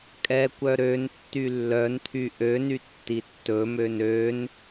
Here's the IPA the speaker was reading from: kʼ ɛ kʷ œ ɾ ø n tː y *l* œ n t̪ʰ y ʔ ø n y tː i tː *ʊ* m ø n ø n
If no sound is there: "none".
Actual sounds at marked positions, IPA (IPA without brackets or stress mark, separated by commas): lː, ɵ